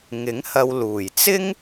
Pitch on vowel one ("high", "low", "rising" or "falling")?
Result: rising